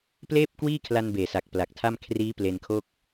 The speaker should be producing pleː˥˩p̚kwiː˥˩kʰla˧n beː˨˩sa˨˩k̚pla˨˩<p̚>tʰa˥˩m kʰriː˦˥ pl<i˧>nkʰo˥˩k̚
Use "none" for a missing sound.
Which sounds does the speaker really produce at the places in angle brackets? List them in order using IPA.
k̚, e˧

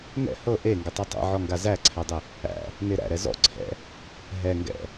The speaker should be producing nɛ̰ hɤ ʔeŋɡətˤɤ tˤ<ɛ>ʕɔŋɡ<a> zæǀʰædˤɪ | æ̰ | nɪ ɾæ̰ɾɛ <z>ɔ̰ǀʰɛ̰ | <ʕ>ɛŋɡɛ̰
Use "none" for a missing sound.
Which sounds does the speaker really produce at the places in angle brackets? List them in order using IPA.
ɛ̰, a, z, ɦ

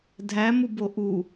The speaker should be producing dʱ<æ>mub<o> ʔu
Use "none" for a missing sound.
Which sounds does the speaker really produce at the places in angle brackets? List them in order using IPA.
æ, o

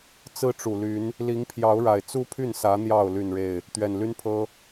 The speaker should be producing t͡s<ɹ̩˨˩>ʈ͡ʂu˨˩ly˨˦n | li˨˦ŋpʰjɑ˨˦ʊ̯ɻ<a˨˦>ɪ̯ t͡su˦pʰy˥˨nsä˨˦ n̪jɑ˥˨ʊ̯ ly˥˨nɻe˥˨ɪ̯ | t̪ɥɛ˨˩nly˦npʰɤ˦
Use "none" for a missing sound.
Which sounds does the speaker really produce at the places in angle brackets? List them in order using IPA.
ɹ̩˦, a˨˩

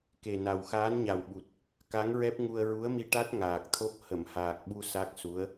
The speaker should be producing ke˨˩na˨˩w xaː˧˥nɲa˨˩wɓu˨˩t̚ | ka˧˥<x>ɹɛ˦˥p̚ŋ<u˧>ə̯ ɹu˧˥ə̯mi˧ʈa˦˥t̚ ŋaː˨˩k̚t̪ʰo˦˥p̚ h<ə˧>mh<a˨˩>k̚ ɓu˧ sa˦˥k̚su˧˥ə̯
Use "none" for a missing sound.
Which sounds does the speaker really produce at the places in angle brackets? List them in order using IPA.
ŋ, u˧, ə˨˩˨, aː˨˩

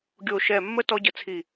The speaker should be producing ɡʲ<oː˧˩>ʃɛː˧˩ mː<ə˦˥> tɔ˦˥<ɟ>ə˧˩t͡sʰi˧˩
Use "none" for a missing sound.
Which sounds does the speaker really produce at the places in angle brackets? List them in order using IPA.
oː˧˩, ə˦˥, ɟ

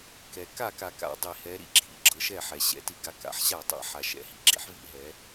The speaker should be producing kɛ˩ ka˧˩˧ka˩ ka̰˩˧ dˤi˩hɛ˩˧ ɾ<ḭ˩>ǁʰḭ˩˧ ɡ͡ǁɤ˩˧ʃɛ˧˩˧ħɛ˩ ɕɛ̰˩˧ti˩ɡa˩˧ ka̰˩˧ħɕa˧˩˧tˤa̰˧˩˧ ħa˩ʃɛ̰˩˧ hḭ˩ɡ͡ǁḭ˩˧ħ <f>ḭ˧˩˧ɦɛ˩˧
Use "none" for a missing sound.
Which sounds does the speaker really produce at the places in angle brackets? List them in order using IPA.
ḭ˩˧, v

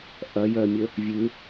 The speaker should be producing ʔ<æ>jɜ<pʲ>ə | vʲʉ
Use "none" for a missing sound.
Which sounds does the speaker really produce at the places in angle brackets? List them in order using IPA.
ɐ, mʲ

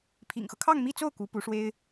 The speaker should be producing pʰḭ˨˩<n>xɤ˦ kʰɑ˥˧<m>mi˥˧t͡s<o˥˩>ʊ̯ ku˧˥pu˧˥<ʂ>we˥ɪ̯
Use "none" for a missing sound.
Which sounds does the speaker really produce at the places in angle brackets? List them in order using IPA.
ŋ, ŋ, o˥˩, ʂ

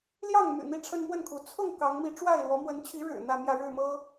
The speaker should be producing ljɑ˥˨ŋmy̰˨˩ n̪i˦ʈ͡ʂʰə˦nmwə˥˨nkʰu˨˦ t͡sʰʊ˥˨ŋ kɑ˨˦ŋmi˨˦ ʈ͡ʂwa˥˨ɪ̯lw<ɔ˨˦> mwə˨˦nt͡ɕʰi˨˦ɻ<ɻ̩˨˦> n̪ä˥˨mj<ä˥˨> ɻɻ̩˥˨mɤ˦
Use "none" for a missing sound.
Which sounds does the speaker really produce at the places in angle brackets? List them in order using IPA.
ɔ˨˦, ɻ̩˨˩, ä˥˨

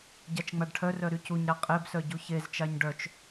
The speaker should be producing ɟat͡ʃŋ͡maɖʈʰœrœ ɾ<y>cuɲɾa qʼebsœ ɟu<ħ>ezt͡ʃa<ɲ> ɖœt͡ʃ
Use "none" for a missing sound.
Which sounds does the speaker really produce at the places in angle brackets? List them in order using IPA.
y, ç, ɲ

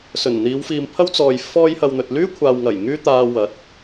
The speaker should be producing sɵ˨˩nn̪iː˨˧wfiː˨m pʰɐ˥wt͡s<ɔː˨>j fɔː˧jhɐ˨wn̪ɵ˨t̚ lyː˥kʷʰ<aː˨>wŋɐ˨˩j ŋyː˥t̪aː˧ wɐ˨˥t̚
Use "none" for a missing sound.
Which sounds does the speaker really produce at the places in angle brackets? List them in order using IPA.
ɔː˨, aː˨

